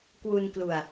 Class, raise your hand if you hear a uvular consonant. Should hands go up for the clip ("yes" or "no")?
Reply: no